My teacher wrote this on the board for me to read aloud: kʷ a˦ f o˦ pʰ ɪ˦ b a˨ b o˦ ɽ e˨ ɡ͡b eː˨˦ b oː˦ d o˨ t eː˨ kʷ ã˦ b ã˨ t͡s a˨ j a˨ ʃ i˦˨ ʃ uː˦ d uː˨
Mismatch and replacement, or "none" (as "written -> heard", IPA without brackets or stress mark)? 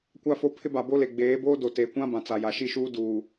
ɽ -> l